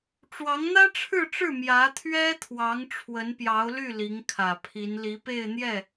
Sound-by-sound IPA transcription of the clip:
ʈ͡ʂwɑ˧˥ŋn̪ä˥ʈ͡ʂʰɻ̩˥˧ʈ͡ʂɻ̩˥˩ mjä˧˥t̪ʰɥɛ˥t̪ʰwɑ˧˥ŋ ʈ͡ʂʰwə˧˥npjɑ˧˥ʊ̯ly˥˩ li˧˥ŋkʰä˨˩pʰi˧˥n li˧˥pe˥˧ɪ̯ n̪jɛ˥˩

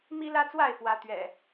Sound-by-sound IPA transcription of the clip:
mi˦lä˦ t͡swa˥˨ɪ̯ fwä˨˦t̪ɥɛ̰˨˩

